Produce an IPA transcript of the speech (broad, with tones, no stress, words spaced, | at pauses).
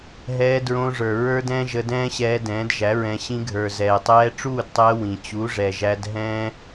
ɦɛː˧dɹõː˧ʐə˞˨ ɹə˞˦dɛ̃˦ ʒə˧ dɛ̃ː˦ɕɛː˧dɛ̃ː˨˦dʒæ˨˦ ɹɛ̃˨ ɕĩ˧ɡʱə˞˨ zɛː˨tˤɛː˧ʈ͡ʂuː˦˨dtˤɛː˧ wĩ˨t͡ɕu˨˦ʐɛ˨ʒæ˧d ɦɛ̃ː˦